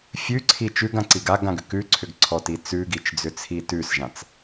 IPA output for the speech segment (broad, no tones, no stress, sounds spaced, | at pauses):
fʲ ʉ ǀʰ i t͡ʃ ʉ ɡ ã ǀ i ɡ a ɡ ã ɡ ʏ k ʉ ǀʰ ʏ ɡ ǀʰ ɔ t i t͡s ʉ ɡ i t͡ʃ d͡z ʏ t͡sʰ i t ʉ s ʒ ã t͡s